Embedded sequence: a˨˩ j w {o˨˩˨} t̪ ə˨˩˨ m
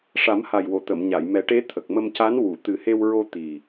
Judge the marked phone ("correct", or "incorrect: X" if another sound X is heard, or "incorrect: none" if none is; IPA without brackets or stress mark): correct